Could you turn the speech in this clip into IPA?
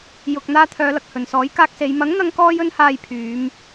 j ʊ˨ k̚ n̪ aː˧ t̪ʰ œː˨˧ l ɐ˨ k̚ h ɵ˨˩ n s ɔː˨˥ j k aː˧ k̚ s e˨˧ j m ɐ˨˥ ŋ n̪ ɐ˨˧ ŋ k ɔː˧ j ɵ˧ n h aː˨ j pʰ yː˨˧ m

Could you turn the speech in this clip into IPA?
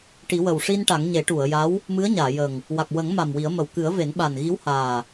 ʈ i˨˩˦ w ə˨˩ w ʂ i˧ n ʈ a˨˩˦ ŋ ɲ e˨˩˦ ʈ u˨˩˨ ə̯ j a˧˥ w | m ɨ˧˥ ə̯ ɲ aː˨˩˨ j ə˨˩ ŋ | w a˨˩ k̚ w ə˨˩˦ ŋ m a˨˩ m w i˨˩˦ ə̯ m ə˨˩ w k ɨ˨˩˦ ə̯ v e˨˩˦ n ɓ a˨˩ n ɣ i˧˥ w h aː˨˩

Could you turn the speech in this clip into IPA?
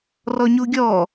r ɔ ɲ u ɡʲ ɔ

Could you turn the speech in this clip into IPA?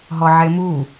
ɦ ɔ ʕ e m u

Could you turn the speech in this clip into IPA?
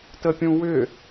t ə pʲ ũ w ʏ

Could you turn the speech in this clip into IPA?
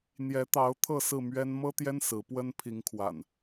n̪ j ɛ˨˦ t̪ ɑ˨˦ ʊ̯ t̪ʰ ɤ˥˨ s ɹ̩˥˨ m ɥ ɛ˦ n m ɤ˦ t̪ j ɛ˦ n s ɹ̩˨˦ p w ə˦ n pʰ i˨˦ ŋ kʰ w a̰˨˩ n

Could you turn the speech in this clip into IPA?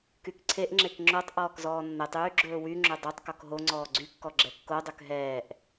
k y k ǀʰ e ʔ ŋ͡ǁ e k ŋ͡ǁ o tˤ ʔ ɔː k z ɔː nː ɛ tˤ yː ɡ͡ǁ ɵː w y ŋ͡ǁ ø dˤ ø tˤ k ɔ k ɦ o ŋ͡ǀ ɔː ɡ͡ǀ y kː ɔ ɡ͡ǁ ɛ kː o dˤ ɵ k ɦ ɛː ʔ

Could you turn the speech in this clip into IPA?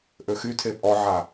ʔ ø x y tʰ e pʼ ɔ ʕ a

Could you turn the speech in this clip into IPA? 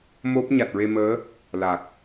m o˦˥ p̚ ɲ a˨˩ t̚ ɹ e˧ m əː˧˥ | l a˨˩ k̚

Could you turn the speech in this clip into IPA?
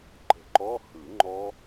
ǃ ə̤˨˩ ǃ ɔ˧˥˧ h ɯ˨˩˦ ŋ͡ǃ ɔ˦˥

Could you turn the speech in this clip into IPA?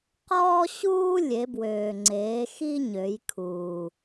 q ɔː˥ ɕ uː˥ lʲ e˩˧ b w øː˩ ŋ͡ǀ eː˩˧ x i˥ ɲ ø˩˧ j kʰ uː˩

